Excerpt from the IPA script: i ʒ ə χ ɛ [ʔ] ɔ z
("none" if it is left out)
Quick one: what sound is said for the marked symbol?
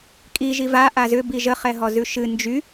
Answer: ɦ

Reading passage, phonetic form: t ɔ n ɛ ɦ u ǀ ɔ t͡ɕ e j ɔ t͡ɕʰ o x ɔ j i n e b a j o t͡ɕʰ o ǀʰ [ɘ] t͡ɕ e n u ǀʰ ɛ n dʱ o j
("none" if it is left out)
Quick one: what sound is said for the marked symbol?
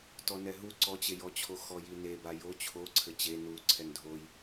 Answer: ɘ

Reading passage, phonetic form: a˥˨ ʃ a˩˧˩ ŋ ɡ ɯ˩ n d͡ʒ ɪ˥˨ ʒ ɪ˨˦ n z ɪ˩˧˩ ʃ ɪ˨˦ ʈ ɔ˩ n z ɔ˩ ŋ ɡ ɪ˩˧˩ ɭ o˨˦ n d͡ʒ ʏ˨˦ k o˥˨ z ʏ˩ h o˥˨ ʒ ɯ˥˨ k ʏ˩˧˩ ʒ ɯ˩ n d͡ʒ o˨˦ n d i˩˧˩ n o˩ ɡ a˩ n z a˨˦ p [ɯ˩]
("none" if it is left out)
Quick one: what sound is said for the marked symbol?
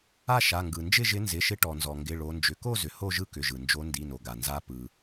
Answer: ɯ˩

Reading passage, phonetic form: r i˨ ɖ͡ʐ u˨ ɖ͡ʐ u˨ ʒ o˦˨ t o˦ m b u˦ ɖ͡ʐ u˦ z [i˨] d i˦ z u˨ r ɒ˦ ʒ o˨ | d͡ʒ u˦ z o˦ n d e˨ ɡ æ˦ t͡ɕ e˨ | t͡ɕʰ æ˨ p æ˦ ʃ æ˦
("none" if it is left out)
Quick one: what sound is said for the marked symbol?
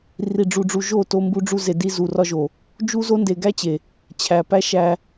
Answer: e˨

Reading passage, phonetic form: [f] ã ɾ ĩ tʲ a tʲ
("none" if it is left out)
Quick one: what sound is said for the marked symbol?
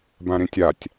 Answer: b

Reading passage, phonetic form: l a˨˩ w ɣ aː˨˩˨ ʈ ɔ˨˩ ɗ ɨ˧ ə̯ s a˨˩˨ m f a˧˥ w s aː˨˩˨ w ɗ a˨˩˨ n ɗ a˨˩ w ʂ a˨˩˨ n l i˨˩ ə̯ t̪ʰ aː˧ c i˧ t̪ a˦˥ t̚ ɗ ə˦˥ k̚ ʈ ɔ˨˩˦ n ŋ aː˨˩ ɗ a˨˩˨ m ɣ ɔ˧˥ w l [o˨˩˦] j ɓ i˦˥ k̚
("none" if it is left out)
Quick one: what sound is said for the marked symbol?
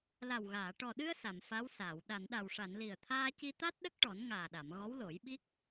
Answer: o˨˩˦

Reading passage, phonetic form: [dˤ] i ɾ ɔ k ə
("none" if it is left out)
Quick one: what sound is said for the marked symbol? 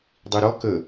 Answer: dˤ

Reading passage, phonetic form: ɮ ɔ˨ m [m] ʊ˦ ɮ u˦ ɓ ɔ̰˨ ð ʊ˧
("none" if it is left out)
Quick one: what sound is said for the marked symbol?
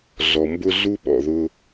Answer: b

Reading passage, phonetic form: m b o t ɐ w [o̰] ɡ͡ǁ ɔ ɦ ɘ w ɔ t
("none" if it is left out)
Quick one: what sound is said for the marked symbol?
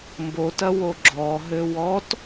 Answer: o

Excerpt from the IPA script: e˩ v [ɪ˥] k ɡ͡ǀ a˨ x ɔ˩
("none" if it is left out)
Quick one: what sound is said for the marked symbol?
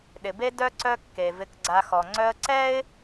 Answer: ɪ˨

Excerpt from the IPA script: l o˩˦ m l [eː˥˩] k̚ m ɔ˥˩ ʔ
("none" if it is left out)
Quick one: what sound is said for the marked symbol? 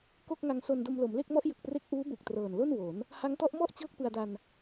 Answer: e˥˩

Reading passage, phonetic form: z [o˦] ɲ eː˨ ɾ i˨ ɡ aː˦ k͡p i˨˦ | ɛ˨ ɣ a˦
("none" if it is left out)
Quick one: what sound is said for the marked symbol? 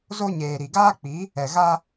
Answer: o˦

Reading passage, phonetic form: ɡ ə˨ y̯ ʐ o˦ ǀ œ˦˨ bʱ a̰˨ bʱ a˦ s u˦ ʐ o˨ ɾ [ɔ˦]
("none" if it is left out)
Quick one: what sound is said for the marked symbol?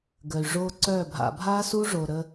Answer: ə˦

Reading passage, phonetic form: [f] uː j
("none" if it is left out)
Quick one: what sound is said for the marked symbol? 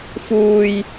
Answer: f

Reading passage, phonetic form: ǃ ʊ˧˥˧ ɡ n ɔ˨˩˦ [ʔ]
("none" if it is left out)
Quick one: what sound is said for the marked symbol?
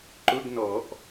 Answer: ʔ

